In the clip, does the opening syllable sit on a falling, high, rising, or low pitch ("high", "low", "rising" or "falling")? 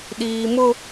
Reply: high